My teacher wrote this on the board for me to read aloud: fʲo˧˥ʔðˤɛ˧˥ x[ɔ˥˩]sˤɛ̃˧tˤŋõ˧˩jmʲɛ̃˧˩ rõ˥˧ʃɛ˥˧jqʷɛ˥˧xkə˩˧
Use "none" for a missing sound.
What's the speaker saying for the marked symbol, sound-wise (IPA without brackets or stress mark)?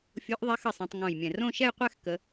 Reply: ə˥˩